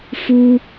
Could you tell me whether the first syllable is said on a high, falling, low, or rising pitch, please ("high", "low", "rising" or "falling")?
high